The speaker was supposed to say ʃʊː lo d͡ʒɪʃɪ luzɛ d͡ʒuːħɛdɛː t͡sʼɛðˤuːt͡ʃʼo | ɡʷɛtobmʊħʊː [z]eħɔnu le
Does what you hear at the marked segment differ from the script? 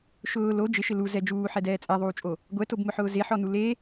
no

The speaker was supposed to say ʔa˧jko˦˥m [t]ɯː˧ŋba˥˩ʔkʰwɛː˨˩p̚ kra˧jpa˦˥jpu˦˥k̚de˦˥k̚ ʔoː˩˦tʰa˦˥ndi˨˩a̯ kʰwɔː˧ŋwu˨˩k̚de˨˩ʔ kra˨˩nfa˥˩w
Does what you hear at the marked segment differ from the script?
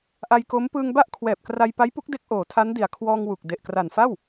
yes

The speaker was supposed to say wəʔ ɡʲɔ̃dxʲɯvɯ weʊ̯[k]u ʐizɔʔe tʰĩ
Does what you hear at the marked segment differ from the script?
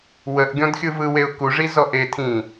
no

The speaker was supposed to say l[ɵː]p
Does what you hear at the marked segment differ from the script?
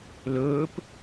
no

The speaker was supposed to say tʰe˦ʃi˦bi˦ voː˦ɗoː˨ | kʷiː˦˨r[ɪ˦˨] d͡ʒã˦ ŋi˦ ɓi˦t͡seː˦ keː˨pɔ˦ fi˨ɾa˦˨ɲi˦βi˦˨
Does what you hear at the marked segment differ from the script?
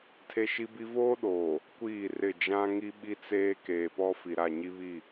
no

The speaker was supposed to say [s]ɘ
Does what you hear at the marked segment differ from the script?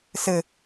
no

